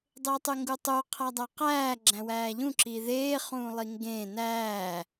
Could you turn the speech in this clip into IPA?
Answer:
dˤ e tˤ y ŋ ɡ u tˤ u qʰ æ dˤ æ q æː ɡ͡ǁ æ̃ w æː ʎ ũ ǁ i ð eː χ ũː lˠ i ŋ ɡ ẽː n æː

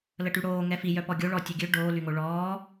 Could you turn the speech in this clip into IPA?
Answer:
l ə ʈ y ɽ oː ŋ ɛ f i j œ p ɔ ɡʲ o ɭ ɔ tʲ u ɡʲ ø ɖ oː l y ŋ o ɭ ɔː

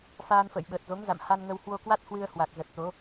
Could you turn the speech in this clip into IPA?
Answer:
f aː˧ n f ə̰ː˧˨ j ɓ əː˨˩ t̚ z o˨˦ ŋ z a̰˧˨ m h a˧ n ŋ ə˧ w h w o˧ k w a˦˥ t̚ h w ɨ˧ ə̯ h w a˨˩ k̚ z ə˨˩ t̚ t̪ o˨˦

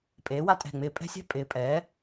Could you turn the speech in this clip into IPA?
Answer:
pʼ eː˩˥ w a˦ tʼ ɛ̤˧˩ ŋ͡m ɪː˧˩ pʼ ɛ̤˦ sʲ ɛ̤˦ pʼ ɪː˩˥ pʼ ɛː˩˥

